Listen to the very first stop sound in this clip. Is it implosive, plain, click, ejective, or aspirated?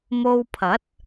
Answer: aspirated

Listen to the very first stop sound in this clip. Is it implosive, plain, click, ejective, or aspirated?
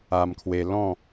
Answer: aspirated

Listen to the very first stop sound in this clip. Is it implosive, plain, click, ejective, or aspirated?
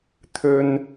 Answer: aspirated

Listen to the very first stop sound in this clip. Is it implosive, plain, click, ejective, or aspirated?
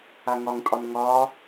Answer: ejective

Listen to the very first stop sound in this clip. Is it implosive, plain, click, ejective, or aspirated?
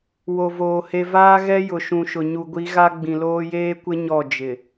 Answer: plain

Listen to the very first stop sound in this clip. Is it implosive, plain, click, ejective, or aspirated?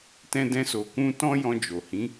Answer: plain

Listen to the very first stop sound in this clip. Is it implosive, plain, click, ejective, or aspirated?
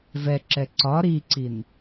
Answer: click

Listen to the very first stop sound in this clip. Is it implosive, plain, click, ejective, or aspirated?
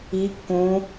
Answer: plain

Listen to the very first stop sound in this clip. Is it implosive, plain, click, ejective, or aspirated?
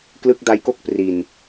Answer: plain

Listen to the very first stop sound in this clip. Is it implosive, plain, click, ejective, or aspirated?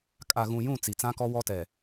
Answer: ejective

